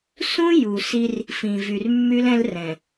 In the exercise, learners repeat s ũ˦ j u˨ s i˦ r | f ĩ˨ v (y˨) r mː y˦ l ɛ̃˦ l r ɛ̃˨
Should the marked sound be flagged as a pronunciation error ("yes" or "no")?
no